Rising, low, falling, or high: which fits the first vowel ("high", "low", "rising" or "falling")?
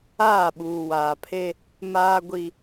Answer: falling